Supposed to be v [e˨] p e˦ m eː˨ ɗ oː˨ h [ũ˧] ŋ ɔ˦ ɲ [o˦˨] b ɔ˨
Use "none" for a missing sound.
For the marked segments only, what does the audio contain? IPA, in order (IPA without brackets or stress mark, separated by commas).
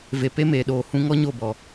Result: e˨, ũ˧, o˦˨